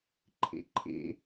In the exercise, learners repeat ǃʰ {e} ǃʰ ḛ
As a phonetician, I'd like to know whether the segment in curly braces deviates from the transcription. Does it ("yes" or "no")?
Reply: yes